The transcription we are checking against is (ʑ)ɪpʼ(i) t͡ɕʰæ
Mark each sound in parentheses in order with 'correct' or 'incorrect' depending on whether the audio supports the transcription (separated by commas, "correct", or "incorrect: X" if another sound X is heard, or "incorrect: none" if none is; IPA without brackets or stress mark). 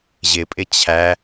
correct, incorrect: ɪ